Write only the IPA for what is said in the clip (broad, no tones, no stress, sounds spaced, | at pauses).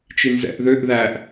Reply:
t͡ʃ i n z ɛ̰ ʔ ð ø ʔ ð æ ʔ